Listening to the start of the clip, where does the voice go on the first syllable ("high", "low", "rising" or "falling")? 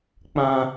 high